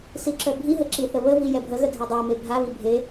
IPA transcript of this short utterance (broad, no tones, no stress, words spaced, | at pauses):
siǁœbʱiɦə ǁiθəβəvi jɛbʱəɣə dʱedˤɛme bʱaβi bʱe